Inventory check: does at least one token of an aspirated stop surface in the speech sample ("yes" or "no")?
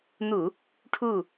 yes